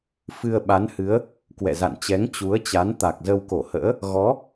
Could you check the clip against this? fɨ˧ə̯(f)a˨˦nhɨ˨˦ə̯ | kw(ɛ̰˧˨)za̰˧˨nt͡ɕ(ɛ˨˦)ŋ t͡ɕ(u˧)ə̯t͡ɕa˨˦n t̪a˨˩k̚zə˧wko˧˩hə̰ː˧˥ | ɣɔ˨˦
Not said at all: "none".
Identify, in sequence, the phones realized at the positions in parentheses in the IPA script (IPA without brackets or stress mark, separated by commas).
ɓ, ɛ̰˧˨, ɛ˨˦, u˨˦